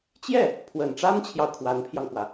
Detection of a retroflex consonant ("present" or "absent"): present